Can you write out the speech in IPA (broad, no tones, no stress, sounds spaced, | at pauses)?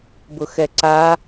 b ʊ x ɛ ǀ a